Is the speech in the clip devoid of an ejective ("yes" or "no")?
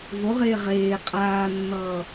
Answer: no